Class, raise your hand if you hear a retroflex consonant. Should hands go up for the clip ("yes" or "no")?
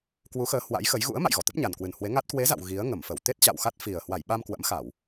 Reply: no